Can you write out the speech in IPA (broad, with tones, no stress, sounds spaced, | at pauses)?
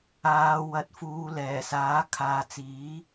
aː˨˧ w ɐ˨˥ t̚ f uː˨˧ l ɛː˨˩ s aː˨˥ kʰ aː˨ t͡s iː˨˥